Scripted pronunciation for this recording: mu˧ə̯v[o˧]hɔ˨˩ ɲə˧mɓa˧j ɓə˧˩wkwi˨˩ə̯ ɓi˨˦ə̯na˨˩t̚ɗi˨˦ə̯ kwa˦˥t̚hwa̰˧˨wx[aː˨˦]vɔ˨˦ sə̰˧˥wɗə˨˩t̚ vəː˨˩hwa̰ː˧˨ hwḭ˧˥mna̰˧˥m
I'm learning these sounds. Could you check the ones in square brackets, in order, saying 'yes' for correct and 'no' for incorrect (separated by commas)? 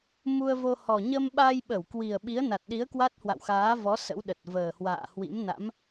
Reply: yes, yes